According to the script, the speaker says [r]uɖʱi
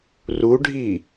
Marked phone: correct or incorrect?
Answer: correct